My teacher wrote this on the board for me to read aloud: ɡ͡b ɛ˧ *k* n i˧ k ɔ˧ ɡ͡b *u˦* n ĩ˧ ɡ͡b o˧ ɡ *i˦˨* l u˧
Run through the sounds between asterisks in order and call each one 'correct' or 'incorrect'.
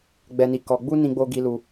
incorrect, correct, incorrect

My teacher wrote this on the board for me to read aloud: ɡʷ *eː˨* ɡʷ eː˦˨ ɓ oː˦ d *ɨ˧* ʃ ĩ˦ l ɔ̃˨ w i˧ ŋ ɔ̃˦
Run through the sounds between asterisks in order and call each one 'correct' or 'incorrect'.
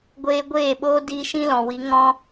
incorrect, incorrect

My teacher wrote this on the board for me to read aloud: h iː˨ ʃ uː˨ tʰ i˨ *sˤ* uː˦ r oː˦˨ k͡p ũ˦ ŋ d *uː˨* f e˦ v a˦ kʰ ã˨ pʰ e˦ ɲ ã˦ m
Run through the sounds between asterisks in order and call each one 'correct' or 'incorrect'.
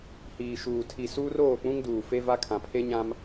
incorrect, correct

